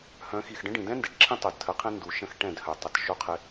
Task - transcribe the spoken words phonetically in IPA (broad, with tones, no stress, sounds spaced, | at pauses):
h œ̃˨˦ x i˨ x ɖ ə̃˦ ɖ ĩ˨ d ɛ̃˦ n d e˨ ʈ ǁʰ ĩ˦ tˤ œ˨ d tʰ ə˨˦ qʰ ẽ˦ n d u˨ ʃ ə̃˦ x ʈ ɛ̃˦˨ d h œ˨ tˤ ə˨ t ʃ o˦ qʰ ɪ˦